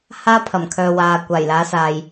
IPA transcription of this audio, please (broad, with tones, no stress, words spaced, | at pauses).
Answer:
haː˥pʰɐ˨˩mkʰœː˨waː˨ kʷaː˨˩jlaː˨˥saː˨j